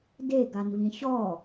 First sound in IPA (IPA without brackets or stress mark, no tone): d